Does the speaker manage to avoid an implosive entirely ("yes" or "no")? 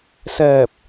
yes